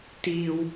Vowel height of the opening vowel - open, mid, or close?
close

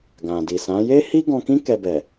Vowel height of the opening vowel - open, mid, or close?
open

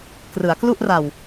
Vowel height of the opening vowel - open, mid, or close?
close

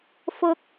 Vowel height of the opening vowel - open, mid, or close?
close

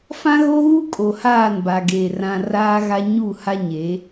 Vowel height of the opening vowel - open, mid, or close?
open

